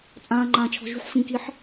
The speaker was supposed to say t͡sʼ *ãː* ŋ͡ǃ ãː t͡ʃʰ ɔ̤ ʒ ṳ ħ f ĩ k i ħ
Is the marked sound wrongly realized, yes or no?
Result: no